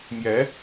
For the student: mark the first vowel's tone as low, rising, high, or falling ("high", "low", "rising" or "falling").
rising